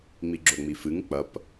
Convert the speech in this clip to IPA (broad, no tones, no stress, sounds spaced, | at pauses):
ŋ͡m i ɡ͡ǁ o ŋ͡m i f ɨ ŋ k͡p ɐ p